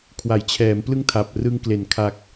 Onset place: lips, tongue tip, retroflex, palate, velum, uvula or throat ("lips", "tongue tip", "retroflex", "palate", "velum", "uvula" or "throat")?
velum